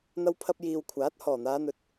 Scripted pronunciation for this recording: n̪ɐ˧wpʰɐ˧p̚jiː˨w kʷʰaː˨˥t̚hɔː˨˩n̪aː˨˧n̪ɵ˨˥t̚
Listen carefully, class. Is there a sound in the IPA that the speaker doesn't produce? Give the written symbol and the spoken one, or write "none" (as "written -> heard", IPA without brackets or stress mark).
none